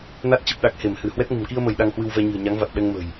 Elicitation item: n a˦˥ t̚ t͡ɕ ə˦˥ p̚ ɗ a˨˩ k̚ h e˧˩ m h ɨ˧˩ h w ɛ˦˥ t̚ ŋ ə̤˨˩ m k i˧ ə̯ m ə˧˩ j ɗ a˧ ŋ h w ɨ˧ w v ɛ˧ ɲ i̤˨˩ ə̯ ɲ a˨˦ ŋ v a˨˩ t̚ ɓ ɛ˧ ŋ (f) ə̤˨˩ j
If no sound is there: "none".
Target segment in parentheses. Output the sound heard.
m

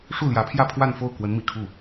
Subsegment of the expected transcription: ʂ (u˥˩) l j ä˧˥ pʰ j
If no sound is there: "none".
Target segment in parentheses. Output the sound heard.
u˥˩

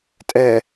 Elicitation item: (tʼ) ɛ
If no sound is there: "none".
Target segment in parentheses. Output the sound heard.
tʼ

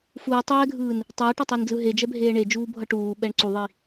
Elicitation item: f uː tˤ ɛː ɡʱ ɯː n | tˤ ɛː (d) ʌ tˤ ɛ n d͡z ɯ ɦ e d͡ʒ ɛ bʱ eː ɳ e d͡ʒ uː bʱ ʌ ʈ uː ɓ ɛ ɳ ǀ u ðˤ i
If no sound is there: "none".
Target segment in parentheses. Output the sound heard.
ʈ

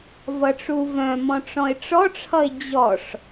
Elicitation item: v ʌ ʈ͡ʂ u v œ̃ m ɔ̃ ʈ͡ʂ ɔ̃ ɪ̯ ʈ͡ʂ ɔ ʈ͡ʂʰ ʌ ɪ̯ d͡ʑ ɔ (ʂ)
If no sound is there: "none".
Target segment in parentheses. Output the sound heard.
ʂ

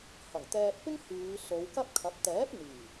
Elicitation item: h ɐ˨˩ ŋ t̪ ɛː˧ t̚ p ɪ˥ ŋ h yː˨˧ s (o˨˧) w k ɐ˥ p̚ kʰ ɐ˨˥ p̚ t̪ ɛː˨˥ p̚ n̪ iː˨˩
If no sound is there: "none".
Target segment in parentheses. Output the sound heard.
o˨˧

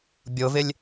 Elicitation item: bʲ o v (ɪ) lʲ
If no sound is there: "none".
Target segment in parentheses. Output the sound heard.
ɪ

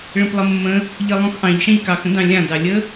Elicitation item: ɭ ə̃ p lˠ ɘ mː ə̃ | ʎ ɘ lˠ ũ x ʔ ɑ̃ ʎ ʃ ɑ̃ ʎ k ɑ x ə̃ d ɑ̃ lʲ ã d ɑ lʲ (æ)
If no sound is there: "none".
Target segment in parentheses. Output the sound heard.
ə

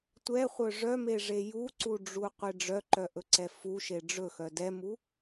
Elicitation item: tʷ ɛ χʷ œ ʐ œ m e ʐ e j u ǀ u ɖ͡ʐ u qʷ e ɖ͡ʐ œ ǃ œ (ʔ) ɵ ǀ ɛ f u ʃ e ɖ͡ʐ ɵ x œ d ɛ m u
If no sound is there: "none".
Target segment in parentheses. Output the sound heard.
ʔ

